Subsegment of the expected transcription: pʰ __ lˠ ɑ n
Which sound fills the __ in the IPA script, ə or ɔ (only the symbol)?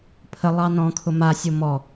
ə